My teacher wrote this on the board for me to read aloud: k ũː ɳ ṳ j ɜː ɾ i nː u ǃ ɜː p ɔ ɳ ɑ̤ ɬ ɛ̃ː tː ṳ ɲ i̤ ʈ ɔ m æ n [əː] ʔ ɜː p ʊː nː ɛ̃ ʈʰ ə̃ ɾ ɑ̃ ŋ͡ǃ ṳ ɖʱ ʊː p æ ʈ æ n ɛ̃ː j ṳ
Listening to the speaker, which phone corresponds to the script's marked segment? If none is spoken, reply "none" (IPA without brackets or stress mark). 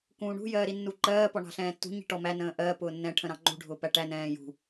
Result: ə̃ː